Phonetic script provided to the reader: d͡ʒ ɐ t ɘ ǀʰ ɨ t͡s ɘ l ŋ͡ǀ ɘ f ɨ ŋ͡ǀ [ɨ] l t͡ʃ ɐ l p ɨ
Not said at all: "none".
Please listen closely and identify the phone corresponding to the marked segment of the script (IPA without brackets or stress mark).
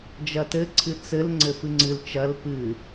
ɨ